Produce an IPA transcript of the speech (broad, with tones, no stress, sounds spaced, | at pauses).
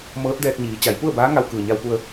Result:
m ɤː˧˥ t̚ d ɛː˧ k̚ ɲ iː˩˧ t͡ɕ a˩˧ j p u˥˨ ə̯ b aː˧˥ ŋ a˧ w k ɯː˩ ɲ a˧ w p u˧ ə̯